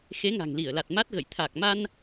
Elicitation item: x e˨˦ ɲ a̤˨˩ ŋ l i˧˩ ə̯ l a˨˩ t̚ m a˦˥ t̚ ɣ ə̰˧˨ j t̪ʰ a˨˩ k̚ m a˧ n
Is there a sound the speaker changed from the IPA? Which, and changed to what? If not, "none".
ɲ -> ŋ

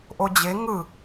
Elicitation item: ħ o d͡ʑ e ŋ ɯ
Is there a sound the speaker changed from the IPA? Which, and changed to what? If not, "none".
ħ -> ʔ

